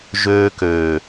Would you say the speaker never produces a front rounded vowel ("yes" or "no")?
no